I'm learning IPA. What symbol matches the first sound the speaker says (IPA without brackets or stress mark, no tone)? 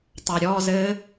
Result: tˤ